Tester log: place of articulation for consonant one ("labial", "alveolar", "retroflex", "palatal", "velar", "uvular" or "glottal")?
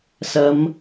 alveolar